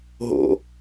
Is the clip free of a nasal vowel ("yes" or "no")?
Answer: yes